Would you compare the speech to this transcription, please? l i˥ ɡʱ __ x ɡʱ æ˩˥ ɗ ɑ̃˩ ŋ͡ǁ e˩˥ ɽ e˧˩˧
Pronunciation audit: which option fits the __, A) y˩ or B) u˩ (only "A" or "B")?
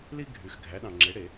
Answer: A